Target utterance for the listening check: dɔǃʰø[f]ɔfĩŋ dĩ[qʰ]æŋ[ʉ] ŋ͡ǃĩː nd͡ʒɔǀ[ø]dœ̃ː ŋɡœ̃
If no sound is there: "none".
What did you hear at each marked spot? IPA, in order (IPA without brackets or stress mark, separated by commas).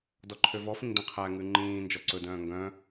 v, qʰ, ʉ, ɵ